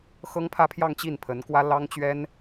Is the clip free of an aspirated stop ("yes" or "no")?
no